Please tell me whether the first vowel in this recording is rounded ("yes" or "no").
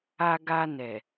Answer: no